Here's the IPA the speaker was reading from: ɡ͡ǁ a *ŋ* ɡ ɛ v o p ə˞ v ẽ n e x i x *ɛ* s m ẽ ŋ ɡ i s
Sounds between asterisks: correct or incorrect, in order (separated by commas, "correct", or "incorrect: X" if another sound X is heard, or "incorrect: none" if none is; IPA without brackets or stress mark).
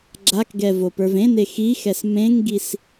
incorrect: k, correct